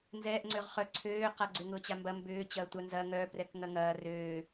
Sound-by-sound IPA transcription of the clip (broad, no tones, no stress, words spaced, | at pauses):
nzɛːʔŋ͡ǀøʁ χœ ǀʰøːqaɡ͡ǀʏ ŋʊːt͡ɕambɐ mbʏː t͡ɕɐːtʷanzɐ ŋœprɛk ŋɐŋɐː røː